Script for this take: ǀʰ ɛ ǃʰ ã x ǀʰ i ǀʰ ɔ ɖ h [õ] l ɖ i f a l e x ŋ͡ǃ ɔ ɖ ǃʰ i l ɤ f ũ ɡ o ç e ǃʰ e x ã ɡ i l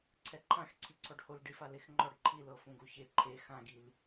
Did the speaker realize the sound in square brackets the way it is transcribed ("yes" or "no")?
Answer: no